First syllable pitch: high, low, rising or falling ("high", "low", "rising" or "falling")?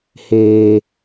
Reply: low